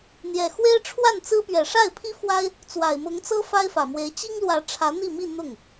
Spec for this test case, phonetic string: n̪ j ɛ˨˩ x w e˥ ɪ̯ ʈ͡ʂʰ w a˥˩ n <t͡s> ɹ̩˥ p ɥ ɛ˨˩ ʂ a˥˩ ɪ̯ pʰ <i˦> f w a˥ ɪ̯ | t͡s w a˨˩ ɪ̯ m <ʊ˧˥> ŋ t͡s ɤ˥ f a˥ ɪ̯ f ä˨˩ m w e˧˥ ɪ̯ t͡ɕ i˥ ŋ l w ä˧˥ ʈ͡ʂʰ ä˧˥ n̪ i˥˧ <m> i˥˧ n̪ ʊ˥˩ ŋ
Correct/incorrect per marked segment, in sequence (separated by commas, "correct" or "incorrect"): correct, incorrect, correct, correct